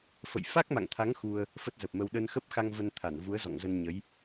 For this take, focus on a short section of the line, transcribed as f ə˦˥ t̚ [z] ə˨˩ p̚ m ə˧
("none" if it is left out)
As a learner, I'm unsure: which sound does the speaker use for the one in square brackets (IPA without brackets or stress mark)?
z